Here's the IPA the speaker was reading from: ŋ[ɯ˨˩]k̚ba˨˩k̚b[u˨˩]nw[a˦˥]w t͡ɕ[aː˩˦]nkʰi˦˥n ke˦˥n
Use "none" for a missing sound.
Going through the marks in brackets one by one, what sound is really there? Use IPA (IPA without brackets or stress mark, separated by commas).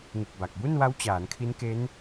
ɯ˨˩, u˥˩, a˦˥, aː˩˦